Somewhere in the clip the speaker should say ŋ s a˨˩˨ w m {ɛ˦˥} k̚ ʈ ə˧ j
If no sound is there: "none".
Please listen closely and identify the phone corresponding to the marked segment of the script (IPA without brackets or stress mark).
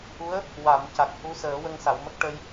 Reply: ə˦˥